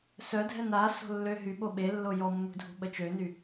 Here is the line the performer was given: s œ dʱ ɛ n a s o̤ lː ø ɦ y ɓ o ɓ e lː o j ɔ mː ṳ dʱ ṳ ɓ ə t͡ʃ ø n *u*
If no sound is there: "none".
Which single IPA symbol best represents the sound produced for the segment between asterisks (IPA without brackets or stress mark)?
y